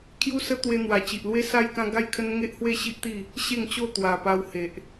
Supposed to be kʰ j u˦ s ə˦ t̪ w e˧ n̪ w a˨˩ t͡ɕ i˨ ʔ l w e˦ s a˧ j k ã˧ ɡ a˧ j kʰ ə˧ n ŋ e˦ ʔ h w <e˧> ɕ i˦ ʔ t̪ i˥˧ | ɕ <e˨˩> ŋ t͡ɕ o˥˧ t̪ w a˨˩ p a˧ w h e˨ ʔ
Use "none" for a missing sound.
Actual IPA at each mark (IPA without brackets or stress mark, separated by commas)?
e˥˧, e˥˧